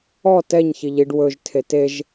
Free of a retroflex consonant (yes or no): no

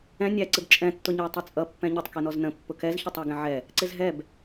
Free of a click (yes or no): no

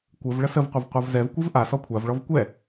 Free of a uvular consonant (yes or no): no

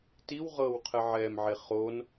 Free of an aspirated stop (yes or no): no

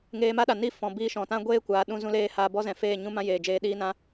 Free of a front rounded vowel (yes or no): yes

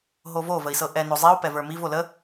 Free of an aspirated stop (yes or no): yes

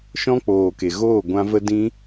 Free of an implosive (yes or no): yes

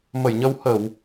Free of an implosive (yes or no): yes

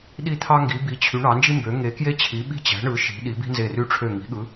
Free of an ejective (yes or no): yes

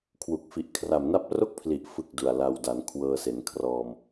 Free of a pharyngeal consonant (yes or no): yes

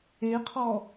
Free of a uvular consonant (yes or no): no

